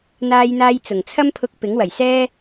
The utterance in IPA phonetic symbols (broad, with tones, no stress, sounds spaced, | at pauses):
n̪ aː˥ j n̪ aː˥ j t͡s ʊ˨˩ ŋ t͡sʰ ɐ˥ m pʰ ʊ˧ k̚ p ɪ˨˥ ŋ w ɐ˨˩ j s ɛː˥